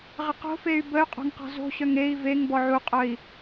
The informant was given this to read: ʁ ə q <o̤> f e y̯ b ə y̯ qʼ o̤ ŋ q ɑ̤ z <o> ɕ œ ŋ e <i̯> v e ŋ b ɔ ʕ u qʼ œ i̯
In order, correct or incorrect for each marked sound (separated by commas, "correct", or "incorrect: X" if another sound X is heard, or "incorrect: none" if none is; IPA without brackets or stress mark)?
correct, incorrect: o̤, correct